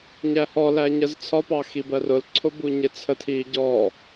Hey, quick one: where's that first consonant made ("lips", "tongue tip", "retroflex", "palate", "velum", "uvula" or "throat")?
palate